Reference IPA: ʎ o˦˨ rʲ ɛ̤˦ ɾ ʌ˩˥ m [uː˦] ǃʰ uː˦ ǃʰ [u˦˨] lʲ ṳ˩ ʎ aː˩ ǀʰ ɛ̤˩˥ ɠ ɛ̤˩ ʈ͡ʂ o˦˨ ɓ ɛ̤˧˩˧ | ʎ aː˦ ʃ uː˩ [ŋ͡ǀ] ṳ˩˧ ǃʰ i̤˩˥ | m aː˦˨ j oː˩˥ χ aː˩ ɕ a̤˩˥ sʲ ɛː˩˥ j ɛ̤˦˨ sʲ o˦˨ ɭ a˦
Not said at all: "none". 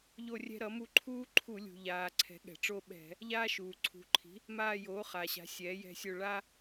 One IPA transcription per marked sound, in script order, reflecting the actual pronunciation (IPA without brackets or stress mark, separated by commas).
u˦, u˧˩˧, ǀʰ